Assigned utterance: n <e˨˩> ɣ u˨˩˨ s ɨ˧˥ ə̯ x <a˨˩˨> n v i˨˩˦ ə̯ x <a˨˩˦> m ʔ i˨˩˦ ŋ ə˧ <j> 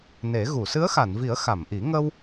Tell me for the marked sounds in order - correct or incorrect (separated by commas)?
incorrect, correct, incorrect, incorrect